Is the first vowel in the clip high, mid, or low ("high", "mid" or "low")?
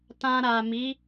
low